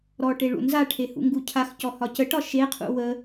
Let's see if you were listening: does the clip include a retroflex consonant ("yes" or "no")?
yes